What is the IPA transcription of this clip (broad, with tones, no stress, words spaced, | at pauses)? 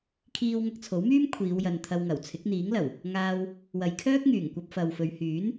kʰiː˧w ŋɐ˧k̚t͡sʰo˨˥wmyː˥m kʷʰiː˨˧wjɐ˨nt̪ʰɐ˧wŋɐ˨˩w t͡sʰɪ˨˥k̚n̪iː˨˥ŋlɐ˨˩w | ŋaː˧w | wɐ˨˧jkʰœː˥k̚ŋyː˨˩ŋkʷɐ˧p̚ fɐ˨wfɵ˨˧ɥhyː˨˥n